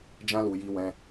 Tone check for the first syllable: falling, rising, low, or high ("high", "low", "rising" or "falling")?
high